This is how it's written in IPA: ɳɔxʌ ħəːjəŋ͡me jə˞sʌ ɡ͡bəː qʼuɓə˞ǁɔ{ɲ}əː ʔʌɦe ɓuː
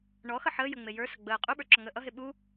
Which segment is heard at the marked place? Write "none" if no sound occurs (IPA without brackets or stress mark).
ŋ